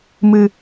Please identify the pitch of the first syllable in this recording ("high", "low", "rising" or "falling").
low